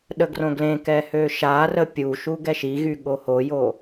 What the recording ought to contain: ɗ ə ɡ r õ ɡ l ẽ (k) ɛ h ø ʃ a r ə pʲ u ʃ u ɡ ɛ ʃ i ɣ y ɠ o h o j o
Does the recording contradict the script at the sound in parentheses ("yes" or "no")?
no